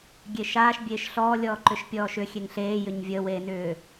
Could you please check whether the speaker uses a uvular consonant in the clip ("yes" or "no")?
no